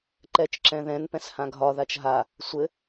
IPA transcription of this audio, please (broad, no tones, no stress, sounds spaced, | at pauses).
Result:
ǃ ɛ t͡ʃ ǁ ɛ̃ ð ɛ̃ n p ɛ̃ s h ã ɡʱ ɒ ð a t͡ʃ ɦ a | sʷ ɘ